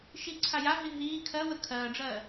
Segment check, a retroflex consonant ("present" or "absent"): present